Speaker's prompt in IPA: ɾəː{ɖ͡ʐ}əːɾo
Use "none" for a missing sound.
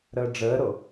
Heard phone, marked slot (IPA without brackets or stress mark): ɖ͡ʐ